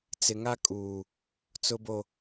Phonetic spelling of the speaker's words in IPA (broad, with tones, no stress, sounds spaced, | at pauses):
t͡s ɪ˨ ŋ a˦ kʼ uː˨ | t͡s ʊ˨ b o˨